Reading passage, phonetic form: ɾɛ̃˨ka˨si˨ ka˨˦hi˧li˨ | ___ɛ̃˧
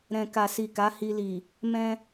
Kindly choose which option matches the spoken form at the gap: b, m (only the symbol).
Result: m